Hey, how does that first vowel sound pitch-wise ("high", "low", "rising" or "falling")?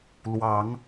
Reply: rising